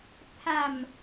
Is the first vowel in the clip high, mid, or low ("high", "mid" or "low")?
low